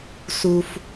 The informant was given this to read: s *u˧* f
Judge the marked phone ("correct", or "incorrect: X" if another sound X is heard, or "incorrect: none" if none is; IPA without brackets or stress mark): correct